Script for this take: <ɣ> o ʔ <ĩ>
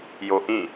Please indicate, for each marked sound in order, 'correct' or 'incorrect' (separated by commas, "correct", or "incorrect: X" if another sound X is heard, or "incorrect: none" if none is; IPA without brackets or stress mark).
incorrect: j, correct